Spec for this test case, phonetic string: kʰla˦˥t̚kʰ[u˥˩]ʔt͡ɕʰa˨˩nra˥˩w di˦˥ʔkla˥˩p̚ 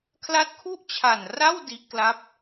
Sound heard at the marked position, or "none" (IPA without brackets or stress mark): u˥˩